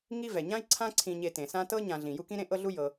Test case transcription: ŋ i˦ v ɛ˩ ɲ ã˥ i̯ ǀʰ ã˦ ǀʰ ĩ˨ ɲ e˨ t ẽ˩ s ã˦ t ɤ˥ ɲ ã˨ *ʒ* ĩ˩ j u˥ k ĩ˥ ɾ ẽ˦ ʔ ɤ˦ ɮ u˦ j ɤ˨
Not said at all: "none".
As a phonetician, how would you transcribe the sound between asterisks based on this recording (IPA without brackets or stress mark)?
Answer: ɮ